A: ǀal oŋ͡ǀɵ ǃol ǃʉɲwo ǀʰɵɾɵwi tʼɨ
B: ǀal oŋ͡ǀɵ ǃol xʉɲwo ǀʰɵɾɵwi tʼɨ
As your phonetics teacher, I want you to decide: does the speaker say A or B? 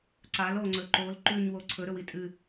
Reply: A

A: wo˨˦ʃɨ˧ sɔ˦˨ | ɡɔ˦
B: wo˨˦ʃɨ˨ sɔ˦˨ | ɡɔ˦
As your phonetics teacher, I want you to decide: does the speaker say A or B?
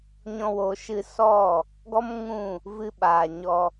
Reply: A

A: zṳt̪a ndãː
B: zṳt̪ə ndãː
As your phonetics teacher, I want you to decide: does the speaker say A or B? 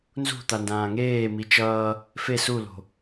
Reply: A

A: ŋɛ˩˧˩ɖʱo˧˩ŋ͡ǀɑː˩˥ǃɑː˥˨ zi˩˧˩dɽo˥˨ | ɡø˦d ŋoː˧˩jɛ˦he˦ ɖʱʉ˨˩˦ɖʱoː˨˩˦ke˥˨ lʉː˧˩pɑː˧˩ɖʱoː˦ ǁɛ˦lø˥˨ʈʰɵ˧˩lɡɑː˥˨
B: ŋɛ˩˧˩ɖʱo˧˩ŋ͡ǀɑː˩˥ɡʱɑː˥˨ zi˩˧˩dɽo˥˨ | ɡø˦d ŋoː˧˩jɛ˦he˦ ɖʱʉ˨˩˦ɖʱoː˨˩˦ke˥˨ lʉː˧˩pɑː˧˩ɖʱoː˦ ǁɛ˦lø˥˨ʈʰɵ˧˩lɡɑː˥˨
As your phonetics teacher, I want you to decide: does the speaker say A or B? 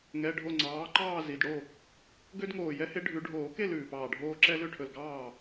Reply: A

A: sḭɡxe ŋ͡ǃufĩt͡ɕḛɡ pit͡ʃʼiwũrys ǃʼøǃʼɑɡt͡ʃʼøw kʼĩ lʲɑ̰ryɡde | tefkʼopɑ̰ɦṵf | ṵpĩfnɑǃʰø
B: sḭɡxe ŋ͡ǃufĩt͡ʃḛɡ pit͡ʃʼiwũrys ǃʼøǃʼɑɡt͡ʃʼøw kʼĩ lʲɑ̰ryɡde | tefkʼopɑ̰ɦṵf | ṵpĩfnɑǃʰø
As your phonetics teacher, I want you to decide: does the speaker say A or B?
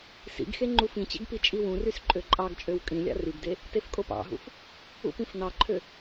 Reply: A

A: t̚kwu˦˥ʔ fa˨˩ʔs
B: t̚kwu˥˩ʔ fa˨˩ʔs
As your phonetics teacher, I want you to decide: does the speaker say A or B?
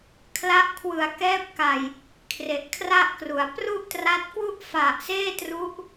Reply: B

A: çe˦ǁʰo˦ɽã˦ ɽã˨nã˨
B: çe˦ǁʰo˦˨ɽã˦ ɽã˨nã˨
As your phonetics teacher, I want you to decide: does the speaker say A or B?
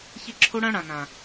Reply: A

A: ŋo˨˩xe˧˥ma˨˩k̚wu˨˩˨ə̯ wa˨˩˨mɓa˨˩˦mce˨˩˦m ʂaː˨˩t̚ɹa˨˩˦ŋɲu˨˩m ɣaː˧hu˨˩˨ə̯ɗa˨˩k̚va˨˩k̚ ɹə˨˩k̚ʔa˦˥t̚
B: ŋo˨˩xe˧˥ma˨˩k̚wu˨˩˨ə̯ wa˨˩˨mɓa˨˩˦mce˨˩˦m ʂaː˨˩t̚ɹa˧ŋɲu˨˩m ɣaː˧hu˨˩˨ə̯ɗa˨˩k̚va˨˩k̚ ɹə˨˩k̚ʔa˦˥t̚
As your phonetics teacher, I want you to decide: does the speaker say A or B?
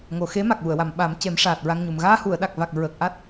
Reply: B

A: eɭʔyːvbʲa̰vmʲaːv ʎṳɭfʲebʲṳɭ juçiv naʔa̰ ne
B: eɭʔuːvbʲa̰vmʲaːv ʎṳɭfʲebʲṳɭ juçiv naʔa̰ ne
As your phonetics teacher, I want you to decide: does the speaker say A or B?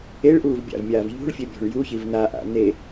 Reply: B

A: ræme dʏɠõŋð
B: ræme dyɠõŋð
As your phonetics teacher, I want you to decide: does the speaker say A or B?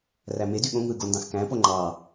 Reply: B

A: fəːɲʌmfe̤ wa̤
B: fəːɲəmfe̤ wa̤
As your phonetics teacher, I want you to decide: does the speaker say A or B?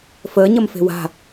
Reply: A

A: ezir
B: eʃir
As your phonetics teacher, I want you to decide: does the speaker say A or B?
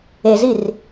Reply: A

